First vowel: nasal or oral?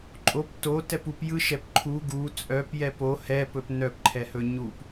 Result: oral